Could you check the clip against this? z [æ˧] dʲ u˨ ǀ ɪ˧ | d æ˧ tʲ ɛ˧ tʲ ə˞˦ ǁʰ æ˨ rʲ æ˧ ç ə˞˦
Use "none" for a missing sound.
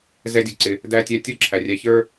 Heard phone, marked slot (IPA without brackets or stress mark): ɛ˧